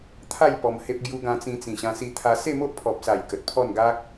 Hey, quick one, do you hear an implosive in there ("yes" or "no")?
no